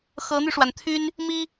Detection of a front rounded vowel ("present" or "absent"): present